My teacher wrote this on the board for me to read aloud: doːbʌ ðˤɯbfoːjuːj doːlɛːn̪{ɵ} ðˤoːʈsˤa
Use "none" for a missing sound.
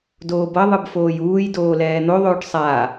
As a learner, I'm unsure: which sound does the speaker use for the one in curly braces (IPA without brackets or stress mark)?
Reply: o